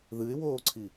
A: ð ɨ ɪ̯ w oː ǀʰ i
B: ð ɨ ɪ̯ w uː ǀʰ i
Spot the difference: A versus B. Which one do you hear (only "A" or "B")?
A